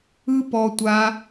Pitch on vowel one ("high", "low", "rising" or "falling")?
high